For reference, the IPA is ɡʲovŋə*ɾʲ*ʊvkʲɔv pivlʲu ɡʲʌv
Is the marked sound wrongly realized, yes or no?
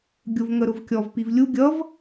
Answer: yes